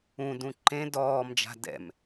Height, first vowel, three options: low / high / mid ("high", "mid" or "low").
high